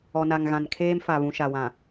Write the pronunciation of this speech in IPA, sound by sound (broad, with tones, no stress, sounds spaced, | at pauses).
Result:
ɔ˨ n a˨ ŋ ɣ ã˨ n kʰ eː˦ m f a˨ β ũ˨ ʃ a˨ w ã˨